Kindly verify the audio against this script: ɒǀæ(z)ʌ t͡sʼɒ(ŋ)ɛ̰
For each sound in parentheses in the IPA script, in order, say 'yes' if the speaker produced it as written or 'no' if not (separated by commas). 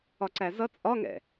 yes, yes